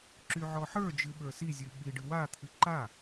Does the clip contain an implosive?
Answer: yes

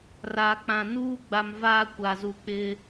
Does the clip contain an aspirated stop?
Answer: no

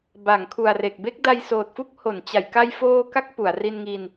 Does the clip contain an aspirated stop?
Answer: yes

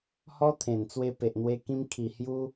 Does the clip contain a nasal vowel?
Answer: yes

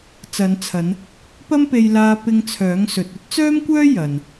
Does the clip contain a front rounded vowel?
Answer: yes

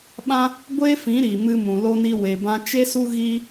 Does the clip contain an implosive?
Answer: yes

